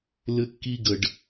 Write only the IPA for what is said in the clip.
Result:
l ɘ˦ kː i˦ ɡ ə˨ ɖ

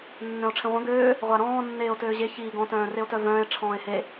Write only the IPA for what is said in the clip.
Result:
nː œ̃ o̯ ʈ͡ʂʰ ẽ ʁʷ œ̃ ɡ øː | ʁʷ a ɾ ɔ̃ː nː eː o̯ t øː ʑ e ç iː ɡ ɔ̃ t œ̃ː r e o̯ t œ v œ̃ː e̯ ʈ͡ʂʰ ɔ̃ː e̯ h e

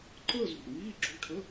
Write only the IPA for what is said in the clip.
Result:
ǃ əː˥˧ z ṳ˩ ʔ ŋ iː˧˥˧ ǁ o̤˧˥˧ ʈʰ ə˧˥˧

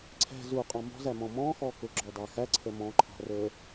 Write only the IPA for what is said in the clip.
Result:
ǀʰ ɛ̤ z u qʼ ɑ̃ m ɔ̤ z æ m ɔ̃ m ɔ̃ x ɔ k ʊ ɡ͡ǁ ɔ d ɑ x æ ǀʰ ə m ɔ̃ ǃʰ ɑ̤ r ə˞

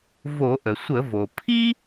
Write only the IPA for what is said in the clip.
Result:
v o˧˩˧ ʔ ə˩ sʷ ə˧˩˧ v o˩ pʰ i˥

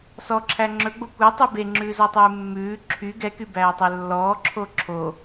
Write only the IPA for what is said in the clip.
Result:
s ɔ ǁʰ æ ŋ͡ǁ ɵ ɡ͡b o kʷ ɛ tˤ ʉ b e ŋ͡ǁ ʉː z ɔ tˤ ʉː mː ʉː ǁʰ y ɡ ɛ k y b æː tˤ ɛ lː ɔː ǁʰ o ǁʰ o

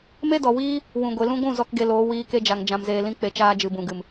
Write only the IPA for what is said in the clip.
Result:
m e˦ d ɔ˨ w iː˦ | w ũ˨ ɡʷ e˨ l ũ˧ ɡʷ ũ˦˨ z ɔ˧ k ɡ e˧ l oː˨˦ w iː˧ k e˦ d͡ʒ a˨ ŋ d͡ʒ ã˧ m z eː˧ l ĩ˧ k͡p e˨ t͡ʃ aː˦ d͡ʒ ɨ˨ b ũ˨ ɡ ɨ˨ m

